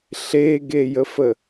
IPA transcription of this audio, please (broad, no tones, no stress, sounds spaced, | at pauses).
ɬ e ɡ e j ə f ə